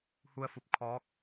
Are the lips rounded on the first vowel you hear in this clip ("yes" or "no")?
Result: yes